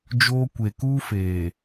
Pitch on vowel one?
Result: high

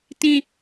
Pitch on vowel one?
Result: falling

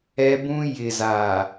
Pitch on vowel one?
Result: high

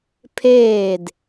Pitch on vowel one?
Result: falling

